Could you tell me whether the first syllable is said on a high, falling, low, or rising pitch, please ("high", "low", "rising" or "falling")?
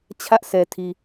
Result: high